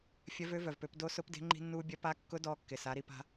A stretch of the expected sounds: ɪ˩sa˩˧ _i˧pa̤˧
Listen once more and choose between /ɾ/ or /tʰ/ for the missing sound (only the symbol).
ɾ